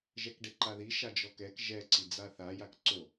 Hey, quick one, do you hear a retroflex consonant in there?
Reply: yes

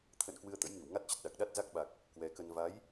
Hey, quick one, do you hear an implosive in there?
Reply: yes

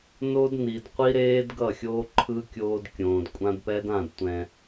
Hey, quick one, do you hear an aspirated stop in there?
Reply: yes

